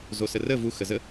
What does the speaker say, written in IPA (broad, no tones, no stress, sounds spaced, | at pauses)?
z o s ə r ə v u x ə z ə